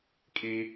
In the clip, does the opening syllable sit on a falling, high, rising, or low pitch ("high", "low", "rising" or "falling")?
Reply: low